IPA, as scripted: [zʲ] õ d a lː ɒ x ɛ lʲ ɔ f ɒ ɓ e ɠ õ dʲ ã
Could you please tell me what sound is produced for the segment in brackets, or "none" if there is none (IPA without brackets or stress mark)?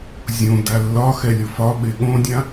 zʲ